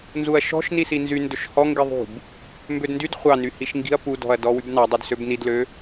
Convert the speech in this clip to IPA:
nzuɐ̯ʃɔ̤ʃ nisinzy ndɵʃhɔ ŋɡiðˤṳb | mbødndyd χʷɑ nyhiʃŋɡi̤ɐ̯ pudɔ̤ɐ̯ dɔwybnɑdˤud søbnidlø

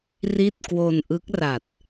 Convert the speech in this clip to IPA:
ri˥˩t̚kwo˧n ʔɯ˦˥k̚ra˨˩t̚

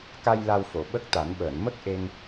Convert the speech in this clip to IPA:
ka˧j la˧wfo˨˩˨ɓə˦˥k̚t̪a˨˩˦n ɓəː˨˩˨nmə˦˥k̚ ʔe˧ŋ

